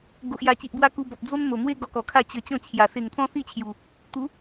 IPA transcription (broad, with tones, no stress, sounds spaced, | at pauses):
ɡ o˨ ʔ j a˨˩ t͡ɕ i˨ ʔ b w a˦ k u˧ b ɔ˨ p̚ d͡z o˦ n n̪ o˨˩ n̪ w e˦ ɡ ɔ˧ k ɔ˨˩ kʰ a˥˧ t͡ɕ ə˨˩ t͡ɕ ɔ̃˥˧ t͡ɕʰ j a˨˩ s e˨˩ ŋ t͡s ɔ̃˦ s i˥˧ t͡ɕʰ j u˨˩ | t̪ u˨˦